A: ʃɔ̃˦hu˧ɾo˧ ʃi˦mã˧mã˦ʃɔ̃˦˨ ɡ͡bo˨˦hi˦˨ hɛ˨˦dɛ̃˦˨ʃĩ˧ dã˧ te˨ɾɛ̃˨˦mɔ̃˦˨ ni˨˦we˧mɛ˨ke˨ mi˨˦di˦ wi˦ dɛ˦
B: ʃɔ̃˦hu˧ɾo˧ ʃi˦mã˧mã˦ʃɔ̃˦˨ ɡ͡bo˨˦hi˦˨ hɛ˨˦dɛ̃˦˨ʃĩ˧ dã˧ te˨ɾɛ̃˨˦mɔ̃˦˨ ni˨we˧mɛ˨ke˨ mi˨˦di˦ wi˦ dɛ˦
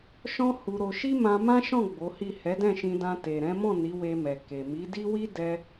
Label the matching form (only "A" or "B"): A